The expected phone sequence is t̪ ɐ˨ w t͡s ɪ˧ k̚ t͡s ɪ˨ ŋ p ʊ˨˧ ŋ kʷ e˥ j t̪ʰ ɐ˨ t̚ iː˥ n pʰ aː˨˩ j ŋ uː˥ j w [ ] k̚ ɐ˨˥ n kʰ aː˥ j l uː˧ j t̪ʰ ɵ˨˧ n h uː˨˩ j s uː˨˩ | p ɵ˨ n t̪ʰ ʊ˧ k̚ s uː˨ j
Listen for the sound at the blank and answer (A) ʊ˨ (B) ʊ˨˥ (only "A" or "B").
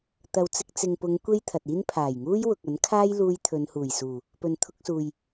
A